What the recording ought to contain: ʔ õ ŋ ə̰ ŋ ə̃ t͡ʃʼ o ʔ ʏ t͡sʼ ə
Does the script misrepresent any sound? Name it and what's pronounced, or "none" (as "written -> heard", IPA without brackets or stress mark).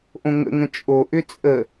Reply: none